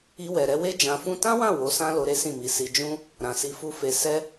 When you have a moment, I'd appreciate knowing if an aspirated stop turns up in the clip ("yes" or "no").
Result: no